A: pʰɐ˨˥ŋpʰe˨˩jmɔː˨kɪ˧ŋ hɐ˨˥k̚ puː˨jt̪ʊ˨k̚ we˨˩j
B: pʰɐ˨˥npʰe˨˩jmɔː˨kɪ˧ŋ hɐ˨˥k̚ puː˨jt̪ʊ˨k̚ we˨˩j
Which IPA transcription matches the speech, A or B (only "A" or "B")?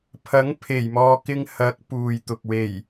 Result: A